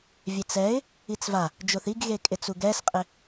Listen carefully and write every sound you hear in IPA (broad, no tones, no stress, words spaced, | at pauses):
vʲet͡sɛɪ̯ | it͡sva | d͡ʒoθiɡɣekʼɪ t͡suɡɛsqʼɪ